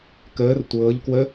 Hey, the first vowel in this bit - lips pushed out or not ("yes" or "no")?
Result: no